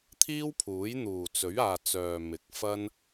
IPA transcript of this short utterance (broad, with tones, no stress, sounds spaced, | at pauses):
t̪ʰ iː˥ w pʰ uː˨˥ j n̪ uː˨˩ t͡s ɵ˨˥ ɥ aː˨ t͡s œː˨ m ɪ˨˥ k̚ f ɐ˥ n